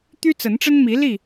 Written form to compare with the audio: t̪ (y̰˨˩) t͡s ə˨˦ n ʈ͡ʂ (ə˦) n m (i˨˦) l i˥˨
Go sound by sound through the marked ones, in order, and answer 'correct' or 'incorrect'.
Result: incorrect: y˦, correct, correct

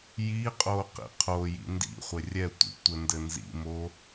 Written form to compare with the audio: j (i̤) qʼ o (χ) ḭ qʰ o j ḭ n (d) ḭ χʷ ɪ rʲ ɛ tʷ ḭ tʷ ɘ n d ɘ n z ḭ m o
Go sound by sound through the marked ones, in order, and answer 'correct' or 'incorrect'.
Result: incorrect: i, incorrect: q, correct

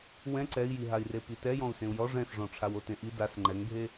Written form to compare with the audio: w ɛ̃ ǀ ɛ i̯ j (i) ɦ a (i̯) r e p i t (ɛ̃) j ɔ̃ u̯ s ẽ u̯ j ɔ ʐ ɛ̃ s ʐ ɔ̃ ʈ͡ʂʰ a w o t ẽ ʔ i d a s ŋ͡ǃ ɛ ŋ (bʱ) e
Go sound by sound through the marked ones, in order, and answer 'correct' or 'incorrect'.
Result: correct, correct, incorrect: ɛ, correct

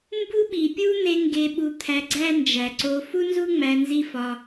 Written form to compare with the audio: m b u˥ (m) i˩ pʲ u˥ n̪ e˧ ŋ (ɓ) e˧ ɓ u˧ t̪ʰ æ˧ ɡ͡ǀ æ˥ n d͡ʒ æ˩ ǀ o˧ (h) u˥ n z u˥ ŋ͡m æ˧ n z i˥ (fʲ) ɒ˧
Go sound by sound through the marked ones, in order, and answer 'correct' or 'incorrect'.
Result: incorrect: ɓ, incorrect: ɡ, incorrect: f, incorrect: f

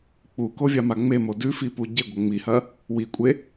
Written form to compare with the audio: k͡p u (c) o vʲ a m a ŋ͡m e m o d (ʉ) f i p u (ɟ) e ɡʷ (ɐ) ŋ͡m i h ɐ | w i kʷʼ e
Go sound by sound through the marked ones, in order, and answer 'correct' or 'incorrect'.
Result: incorrect: k, correct, correct, correct

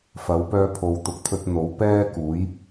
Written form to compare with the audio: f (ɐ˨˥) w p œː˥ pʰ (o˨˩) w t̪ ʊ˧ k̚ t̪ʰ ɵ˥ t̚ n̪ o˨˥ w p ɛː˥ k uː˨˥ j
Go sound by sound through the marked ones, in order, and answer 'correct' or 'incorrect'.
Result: correct, incorrect: o˧

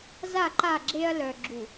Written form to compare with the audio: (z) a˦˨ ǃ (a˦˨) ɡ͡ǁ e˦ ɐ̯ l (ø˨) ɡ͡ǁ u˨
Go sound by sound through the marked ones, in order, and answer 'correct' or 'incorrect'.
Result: correct, correct, incorrect: œ˨

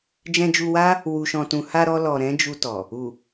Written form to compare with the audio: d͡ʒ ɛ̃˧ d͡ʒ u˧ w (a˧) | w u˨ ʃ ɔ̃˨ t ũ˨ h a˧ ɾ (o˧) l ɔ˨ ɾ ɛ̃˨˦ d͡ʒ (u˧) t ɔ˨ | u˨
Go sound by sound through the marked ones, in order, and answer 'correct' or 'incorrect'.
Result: incorrect: a˦, incorrect: ɔ˧, correct

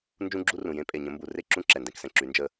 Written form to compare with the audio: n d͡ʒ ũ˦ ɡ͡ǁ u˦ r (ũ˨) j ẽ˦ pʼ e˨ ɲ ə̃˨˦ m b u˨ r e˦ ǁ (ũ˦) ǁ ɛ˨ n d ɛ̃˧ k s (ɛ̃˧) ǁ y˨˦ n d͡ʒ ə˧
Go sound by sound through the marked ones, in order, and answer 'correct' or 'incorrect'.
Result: correct, correct, incorrect: ɛ̃˨

